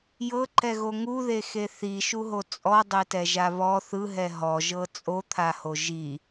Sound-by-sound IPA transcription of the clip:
j ɤ ǃ ɛ ɣ o ŋ u ð e x e θ i ʃ u ɦ o t͡sʼ ɔ dˤ e t ɛ ʒ a β ɔ θ ɯ ɦ ɛ ɦ ɔ ʒ ɤ t͡sʼ o t̪ʰ a h o ʒ i

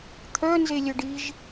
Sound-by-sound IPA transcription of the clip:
t̪ʰ œ n z e lʲ œ ɖ i ʒ

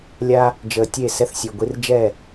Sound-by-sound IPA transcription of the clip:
lʲ a˦ | d͡ʒ əː˨ tʲ e˦˨ s ɛ˦ θ sʲ ø˨ ɡʷ i˦ r d͡ʒ ɛ˦˨

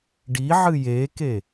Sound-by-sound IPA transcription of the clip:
ɖ i ʕ ɨ j e k e

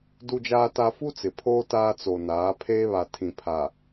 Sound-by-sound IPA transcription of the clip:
d u˦ d͡ʒ aː˦ t a˦ f u˦ t͡s ɪ˨ pʰ oː˦ t aː˦ t͡s o˨ n aː˨˦ pʰ eː˦ β a˨ tʰ ĩ˨ pʰ a˨

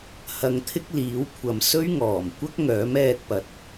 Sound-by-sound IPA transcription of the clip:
h ɐ˧ ŋ t̪ʰ ɪ˥ k̚ l iː˨˥ w kʷʰ ɐ˨ m s ɵ˥ ɥ ŋ ɔː˨˩ m kʷ ɐ˥ k̚ ŋ œː˨˥ m ɛː˧ t̚ p ɐ˨˥ t̚

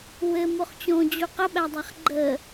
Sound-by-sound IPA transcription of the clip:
w ɘ m o χ t͡ɕ õ d͡ʑ u q ə ɓ æ dˤ a χ ɡ͡ǃ ə

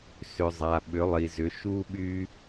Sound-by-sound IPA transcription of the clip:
s ʏ˩ zˤ a˩ ɓ ʏ˩˧ lˠ i˩ z ʏ˩˧ ʃ u˦ ɓ y˦

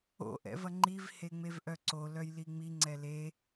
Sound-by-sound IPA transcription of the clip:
o̰ ʔ ɛ̰ v ɐ ŋ͡ǃ i v h e ŋ͡m e v ʔ œ ǀ o l œ j l i ŋ͡m i ŋ͡ǀ ɛ l e

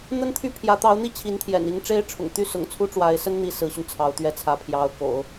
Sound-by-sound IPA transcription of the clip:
n̪ ə˥ n t̪ʰ y˥˩ pʰ j ä˧˥ t̪ ɑ˧˥ ʊ̯ n̪ i˥˩ t͡ɕʰ i˧˥ n t̪ʰ j ɛ̰˨˩ n i˧˥ ŋ ʈ͡ʂ e˥ ɪ̯ ʈ͡ʂʰ ʊ̰˨˩ ŋ t̪ y˥ s ʊ̰˨˩ ŋ t͡sʰ u˥ ʈ͡ʂ w a˧˥ ɪ̯ s ə˥ n n̪ i˧˥ s ɹ̩˧˥ ɕ y˧ n t͡sʰ ɑ˧˥ ʊ̯ t̪ ɥ ɛ˧˥ t͡sʰ ä˧˥ pʰ j ɑ˧˥ ʊ̯ k o̰˨˩˦ ʊ̯

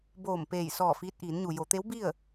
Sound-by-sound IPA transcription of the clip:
b oː˧˩ m p eː˧˩ j s ɔː˧˩ f iː˧ t̚ ʔ iː˩˧ n ɲ u˩ j o˩˧ t̪ e˧˥ w b i˥˨ ə̯

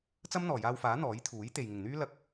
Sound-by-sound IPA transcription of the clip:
t͡s ɐ˥ m n̪ ɔː˨˩ j aː˧ w f aː˨˥ n̪ ɔː˨˥ j t̪ʰ uː˨˥ j t̪ e˨ j ŋ ɪ˨˩ ŋ n̪ yː˥ l ɐ˧ k̚

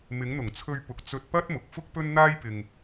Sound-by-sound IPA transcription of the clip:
m ɪ˨˧ ŋ n̪ ʊ˨˩ ŋ t͡sʰ ɵ˧ ɥ p ʊ˨ k̚ t͡s ɵ˧ t̚ p ɐ˥ t̚ m ʊ˨˥ k̚ f ʊ˥ k̚ p ɵ˥ n n̪ aː˥ j p ɪ˧ ŋ

